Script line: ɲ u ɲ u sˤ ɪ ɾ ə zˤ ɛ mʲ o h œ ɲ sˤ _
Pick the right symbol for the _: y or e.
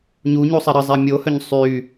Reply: y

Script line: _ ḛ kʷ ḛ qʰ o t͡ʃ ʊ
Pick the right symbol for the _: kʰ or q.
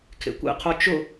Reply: kʰ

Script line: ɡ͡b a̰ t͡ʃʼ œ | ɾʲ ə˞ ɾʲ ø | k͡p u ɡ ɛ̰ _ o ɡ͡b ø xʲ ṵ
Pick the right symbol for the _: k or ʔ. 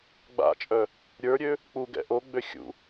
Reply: ʔ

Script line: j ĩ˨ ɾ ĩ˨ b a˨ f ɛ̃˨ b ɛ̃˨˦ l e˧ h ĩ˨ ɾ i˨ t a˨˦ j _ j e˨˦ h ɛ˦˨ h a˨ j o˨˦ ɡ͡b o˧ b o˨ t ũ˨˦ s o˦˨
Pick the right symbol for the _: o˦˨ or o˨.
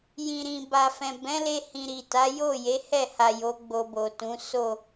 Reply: o˦˨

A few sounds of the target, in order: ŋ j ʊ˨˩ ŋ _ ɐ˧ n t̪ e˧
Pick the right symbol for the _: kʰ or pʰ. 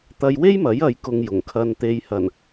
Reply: kʰ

